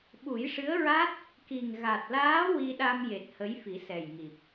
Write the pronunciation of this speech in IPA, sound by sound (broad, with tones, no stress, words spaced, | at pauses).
ɓu˨˩˦jʂɨ˧˥ə̯ɹa˦˥t̚ | ki˨˩ŋ ɣa˨˩t̚laː˧˥ wi˧ɗa˧mje˨˩t̚ hə˧˥jfi˨˩˦sɛ˨˩jŋi˨˩p̚